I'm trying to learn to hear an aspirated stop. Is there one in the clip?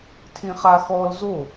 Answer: yes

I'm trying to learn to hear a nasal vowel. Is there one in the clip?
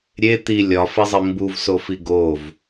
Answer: no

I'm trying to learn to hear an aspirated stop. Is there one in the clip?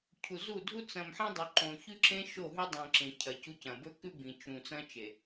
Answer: yes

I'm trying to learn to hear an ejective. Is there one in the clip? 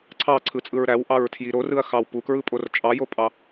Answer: yes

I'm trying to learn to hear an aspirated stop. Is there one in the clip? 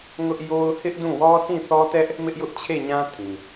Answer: yes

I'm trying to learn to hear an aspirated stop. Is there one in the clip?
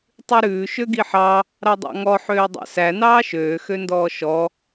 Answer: no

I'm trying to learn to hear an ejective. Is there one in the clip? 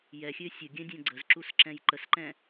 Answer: no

